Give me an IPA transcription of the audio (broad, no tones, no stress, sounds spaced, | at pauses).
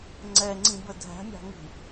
ŋ͡ǀ ɛ ŋ͡ǀ ĩ b ə dʱ æ̤ mʲ ɑ̤ ŋ i̤